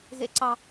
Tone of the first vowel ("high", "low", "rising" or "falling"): low